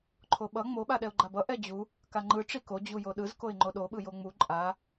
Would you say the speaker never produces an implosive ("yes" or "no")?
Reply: no